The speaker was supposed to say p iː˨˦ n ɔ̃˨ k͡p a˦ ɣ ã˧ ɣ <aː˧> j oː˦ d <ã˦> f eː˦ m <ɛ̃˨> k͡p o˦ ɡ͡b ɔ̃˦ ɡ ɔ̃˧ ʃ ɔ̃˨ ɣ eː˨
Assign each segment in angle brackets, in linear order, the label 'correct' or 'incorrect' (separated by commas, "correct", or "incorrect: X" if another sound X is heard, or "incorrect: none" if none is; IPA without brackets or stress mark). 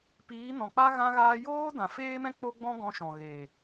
correct, incorrect: ã˨, incorrect: ɛ̃˦